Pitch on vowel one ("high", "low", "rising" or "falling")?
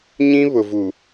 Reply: high